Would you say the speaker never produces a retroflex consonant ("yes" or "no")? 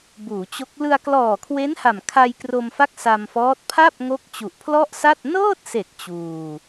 yes